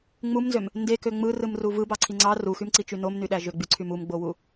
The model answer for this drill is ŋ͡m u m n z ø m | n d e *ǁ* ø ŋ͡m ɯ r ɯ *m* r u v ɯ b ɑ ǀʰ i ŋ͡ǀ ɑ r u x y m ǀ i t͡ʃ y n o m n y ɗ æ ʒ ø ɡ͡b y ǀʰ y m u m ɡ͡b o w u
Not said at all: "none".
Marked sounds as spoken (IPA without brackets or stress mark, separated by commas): k, m